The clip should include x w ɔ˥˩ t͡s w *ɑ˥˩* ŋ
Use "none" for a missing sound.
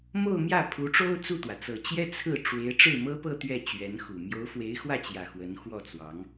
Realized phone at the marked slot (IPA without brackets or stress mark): ɑ˧˥